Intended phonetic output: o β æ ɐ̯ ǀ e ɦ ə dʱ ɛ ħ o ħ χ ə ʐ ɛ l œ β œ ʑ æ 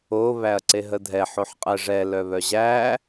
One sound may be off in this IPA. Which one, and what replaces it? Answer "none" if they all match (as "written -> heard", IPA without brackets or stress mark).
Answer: χ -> qʼ